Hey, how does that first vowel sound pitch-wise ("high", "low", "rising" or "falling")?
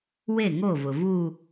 falling